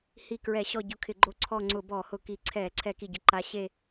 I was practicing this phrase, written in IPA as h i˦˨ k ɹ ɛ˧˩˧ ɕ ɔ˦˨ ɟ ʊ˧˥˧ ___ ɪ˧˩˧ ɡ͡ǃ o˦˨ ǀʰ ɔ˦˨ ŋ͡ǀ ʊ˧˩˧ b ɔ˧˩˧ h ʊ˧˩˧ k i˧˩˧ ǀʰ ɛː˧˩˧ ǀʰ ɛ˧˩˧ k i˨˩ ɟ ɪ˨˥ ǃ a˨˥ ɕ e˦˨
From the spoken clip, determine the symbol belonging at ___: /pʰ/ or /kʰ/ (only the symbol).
kʰ